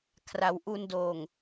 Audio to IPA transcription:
kʰ r a˩˦ w ʔ u˧ n d oː˨˩ ŋ

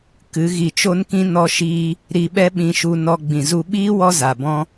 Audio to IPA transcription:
k ɨ˨˦ ɣ i˧ t͡ʃ o˦ n k ĩ˦ n ɔ˧ ʃ iː˧ | ɾ i˧ ɓ ɛ˦ ɓ ĩ˧ ʃ u˧ n ɔ˧ ɡ͡b ĩ˨ z u˧ ɓ iː˦ w ɔ˧ z a˨ b ɔ̃˦

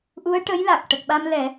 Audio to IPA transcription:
ʔ u˧˥ ə̯ ʈ ə˧˥ j l a˨˩ k̚ ʈ ə˨˩ k̚ ɓ a˧ m l ɛ˨˩˦

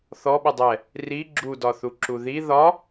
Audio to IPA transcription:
θ ɔ ɓ ə dˤ ɛ | r i ɡ͡ǁ u d ɒ θ u ǁ u ð i ð ɒ

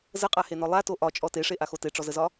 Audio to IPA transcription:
z ə qʼ a h e n ɔ lˠ a t o ʔ ɒ t͡ʃʼ ɔ t e ʂ e ʔ a x o t e ʈ͡ʂ ɔ z ə z ɒ

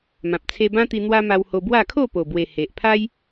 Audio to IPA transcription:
m ã˨ p̚ t͡sʰ e˧ b ã˦ t̪ i˧ n̪ w a˧ m a˧ w h o˧ b w a˥˧ kʰ o˥˧ p o˨˩ b w e˨˩ h e˨ ʔ pʰ a˦ j

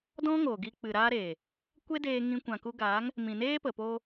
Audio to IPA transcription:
d ɔ̃˦ ŋ oː˨ ɡ i˧ k͡p ɨ˨ ɾ aː˧ ɾ eː˨ | kʷ e˦ d eː˧ ŋ ĩ˧ kʷ ã˨ k u˧ ɡ aː˨˦ ŋ | m ĩ˨ n eː˦ p ə˨ p oː˧

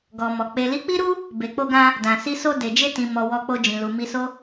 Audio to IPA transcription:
ɡ ɔ˨ m ɔ˨ k͡p e˨ l i˨˦ k͡p i˦ ɾ u˦ | b e˨ k͡p o˧ ɡ ã˧ | d ã˨ s i˧ s o˧ d e˨ d͡ʒ e˧ t ĩ˨ m ɔ˨ w ɔ˧ k͡p o˧ d͡ʒ ĩ˨ l u˨ m i˧ s o˦

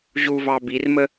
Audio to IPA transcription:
ʑ u v ɑ b i r m ə

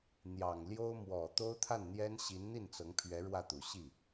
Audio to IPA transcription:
n̪ j ɑ˨˩ ŋ l j o˥ ʊ̯ m w ɔ˨˩ t̪ o˥ ʊ̯ t̪ʰ a˥˩ n n̪ j ɛ˥ n ɕ i˧˥ n n̪ i˥˩ n t͡s ɤ˧˥ ŋ pʰ ɥ ɛ˧˥ ɻ w ä˥˩ t̪ u˨˩ ɕ i˥˩

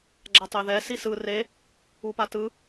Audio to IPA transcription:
ɡ͡ǁ a tˤ e ð ɛ s i s ɯ r e | u p a t ɯ

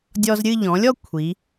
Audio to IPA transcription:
dʲ ɔ˧ z ɾʲ ɨ˥˧ ʎ ɔ̃˩˧ lʲ ɔ˥˧ kʷʰ i˩˧

